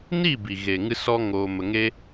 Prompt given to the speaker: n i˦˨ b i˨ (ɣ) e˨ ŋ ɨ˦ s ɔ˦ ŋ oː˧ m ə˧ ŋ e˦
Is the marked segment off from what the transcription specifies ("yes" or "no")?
no